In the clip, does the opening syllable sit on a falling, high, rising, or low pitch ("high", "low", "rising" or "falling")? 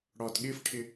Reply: low